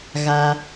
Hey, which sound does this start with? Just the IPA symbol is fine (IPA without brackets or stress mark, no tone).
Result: ɣ